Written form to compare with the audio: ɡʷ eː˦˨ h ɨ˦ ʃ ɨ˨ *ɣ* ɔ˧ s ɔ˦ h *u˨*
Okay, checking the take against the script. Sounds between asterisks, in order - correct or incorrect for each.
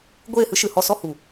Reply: incorrect, correct

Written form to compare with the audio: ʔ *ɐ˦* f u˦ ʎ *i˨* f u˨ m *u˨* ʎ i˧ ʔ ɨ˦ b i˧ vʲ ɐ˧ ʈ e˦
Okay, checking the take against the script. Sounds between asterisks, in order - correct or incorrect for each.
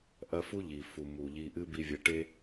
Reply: incorrect, correct, correct

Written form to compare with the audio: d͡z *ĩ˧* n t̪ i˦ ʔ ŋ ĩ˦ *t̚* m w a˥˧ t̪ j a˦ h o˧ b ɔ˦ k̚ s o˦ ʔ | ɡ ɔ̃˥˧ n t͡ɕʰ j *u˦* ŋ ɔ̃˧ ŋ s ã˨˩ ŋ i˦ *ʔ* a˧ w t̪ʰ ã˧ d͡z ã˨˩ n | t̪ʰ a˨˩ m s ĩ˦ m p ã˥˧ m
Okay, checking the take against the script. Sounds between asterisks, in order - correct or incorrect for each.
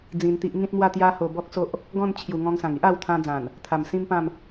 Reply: correct, correct, incorrect, correct

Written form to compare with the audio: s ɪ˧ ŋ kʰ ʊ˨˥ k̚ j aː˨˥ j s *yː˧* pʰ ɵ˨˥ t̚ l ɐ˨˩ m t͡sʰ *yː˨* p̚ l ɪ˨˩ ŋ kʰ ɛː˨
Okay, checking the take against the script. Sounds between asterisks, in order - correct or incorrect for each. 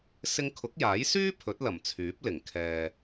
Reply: incorrect, incorrect

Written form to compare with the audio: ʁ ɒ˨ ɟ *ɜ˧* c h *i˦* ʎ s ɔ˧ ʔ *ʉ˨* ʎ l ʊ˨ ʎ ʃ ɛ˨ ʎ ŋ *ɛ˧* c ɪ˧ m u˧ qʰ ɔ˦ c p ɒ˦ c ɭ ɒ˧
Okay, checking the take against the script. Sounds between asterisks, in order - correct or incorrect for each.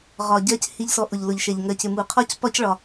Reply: incorrect, correct, incorrect, incorrect

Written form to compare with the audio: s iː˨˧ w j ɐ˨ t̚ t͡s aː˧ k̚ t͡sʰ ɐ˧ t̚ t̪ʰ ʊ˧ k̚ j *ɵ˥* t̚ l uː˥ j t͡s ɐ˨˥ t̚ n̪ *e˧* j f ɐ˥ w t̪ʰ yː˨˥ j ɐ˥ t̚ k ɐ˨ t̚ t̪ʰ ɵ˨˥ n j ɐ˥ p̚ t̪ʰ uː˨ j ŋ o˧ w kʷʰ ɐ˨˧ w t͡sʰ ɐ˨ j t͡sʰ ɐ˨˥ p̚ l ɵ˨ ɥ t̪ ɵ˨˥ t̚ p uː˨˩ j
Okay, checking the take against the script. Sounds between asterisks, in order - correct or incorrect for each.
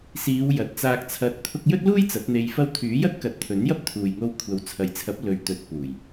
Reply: correct, correct

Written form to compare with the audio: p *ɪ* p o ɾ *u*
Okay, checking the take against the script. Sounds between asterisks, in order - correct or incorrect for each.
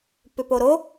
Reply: incorrect, incorrect

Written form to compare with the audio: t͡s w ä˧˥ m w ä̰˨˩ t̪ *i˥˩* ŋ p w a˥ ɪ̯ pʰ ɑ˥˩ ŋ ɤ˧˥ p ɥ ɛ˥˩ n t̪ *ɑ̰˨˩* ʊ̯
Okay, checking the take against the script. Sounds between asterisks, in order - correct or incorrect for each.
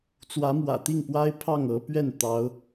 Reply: correct, incorrect

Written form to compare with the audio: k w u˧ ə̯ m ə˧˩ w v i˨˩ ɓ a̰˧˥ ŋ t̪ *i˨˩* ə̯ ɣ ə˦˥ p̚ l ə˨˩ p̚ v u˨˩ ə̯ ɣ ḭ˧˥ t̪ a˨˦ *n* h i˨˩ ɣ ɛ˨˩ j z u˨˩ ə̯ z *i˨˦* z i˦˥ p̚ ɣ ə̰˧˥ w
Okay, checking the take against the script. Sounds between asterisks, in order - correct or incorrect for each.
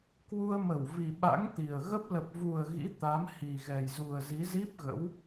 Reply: correct, incorrect, correct

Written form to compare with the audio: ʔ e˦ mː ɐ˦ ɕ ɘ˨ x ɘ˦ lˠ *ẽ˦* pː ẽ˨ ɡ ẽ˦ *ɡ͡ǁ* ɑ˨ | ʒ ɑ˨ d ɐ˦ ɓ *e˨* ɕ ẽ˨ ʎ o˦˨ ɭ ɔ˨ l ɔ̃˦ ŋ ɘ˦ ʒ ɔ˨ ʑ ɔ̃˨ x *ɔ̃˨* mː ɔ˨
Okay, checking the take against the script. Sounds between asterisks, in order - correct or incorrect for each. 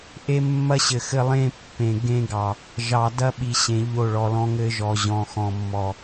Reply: correct, incorrect, incorrect, correct

